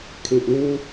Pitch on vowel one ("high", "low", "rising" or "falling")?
low